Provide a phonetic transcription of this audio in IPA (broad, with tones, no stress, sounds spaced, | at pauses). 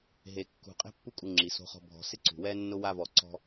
ɦ e˨ kː ṳ˨ qʼ e̤˥ pː u˦ kʼ u˨ ŋ͡ǁ i˩ s o̤˨ χ ɔ̤˨ bʱ ɔ̤˨ s ɪ˥ ǀ ṳ˩ w ɛ˥ nː ʊ˦ w a˦ v ɔ˨ ǀ ɔ̤˦